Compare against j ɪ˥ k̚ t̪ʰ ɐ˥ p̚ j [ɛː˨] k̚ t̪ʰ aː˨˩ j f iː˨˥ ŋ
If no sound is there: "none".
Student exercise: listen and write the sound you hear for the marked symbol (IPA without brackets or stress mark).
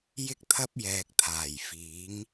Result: ɛː˨